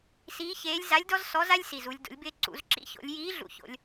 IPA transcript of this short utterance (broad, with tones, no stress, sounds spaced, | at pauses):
s iː˧˥ ç eː˧˥ lʲ z a˧˥ lʲ d ɔ˥ z s ɔ˧˥ z a˥ lʲ s i˨˩ z u˩˧ lʲ d o̰˩˧ lʲ b ɪː˧ ǀ ṵ˩˧ z ǁ ḭ˧˥ ç o̰˩˧ lʲ j iː˧˥ ɮ ṵ˨˩ ç o̰˩˧ lʲ